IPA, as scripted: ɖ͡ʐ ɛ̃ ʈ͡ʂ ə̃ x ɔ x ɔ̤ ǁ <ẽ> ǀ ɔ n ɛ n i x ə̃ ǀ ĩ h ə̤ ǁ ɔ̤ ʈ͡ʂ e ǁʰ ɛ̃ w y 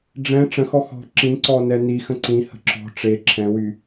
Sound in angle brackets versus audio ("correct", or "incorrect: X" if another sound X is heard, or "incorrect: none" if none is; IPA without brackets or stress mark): incorrect: ĩ